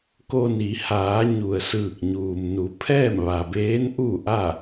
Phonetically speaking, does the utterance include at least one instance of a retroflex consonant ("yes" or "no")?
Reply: no